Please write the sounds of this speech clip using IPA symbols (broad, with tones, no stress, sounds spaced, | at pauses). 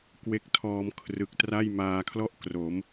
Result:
k w e˦˥ k̚ tʰ ɔː˧ m kʰ r ɯ˨˩ k̚ t r a˥˩ j m aː˧ kʰ l ɔ˥˩ ʔ k r o˩˦ m